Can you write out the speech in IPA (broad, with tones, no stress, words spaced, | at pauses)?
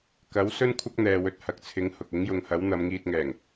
kɐ˨˥wsɵ˥n kʷʰɐ˥k̚n̪ɛː˨wɵ˨t̚ hɐ˨k̚t͡sʰɪ˨˥ŋ hʊ˨k̚ ɪ˨˥ŋjʊ˨ŋhɐ˨˥w n̪ɐ˨˧mŋiː˧t̚ŋɛː˨˩ŋ